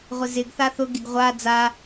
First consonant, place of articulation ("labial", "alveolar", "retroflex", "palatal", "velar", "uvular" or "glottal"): uvular